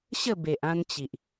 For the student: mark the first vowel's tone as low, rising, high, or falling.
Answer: falling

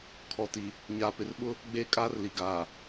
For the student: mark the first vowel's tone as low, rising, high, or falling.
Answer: low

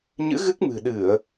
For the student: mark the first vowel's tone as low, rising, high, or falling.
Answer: rising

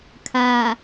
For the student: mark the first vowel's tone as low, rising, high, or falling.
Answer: low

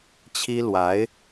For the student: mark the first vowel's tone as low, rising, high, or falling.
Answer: high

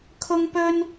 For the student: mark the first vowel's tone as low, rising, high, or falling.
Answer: high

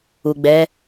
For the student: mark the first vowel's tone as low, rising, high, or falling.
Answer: low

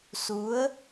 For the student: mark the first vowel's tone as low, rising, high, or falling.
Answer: rising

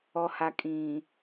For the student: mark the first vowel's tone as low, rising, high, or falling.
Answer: low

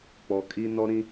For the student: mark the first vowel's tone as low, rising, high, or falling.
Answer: low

